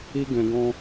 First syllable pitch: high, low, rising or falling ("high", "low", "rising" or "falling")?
high